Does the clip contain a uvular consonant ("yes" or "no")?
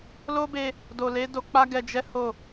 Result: no